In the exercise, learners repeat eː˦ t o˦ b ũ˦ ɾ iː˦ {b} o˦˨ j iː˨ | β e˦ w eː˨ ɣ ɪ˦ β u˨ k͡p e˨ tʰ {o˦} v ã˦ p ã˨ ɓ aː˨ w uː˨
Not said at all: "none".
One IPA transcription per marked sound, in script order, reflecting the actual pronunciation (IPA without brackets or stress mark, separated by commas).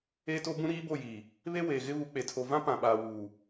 b, o˨